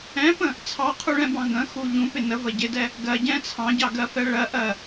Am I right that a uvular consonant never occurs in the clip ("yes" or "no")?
no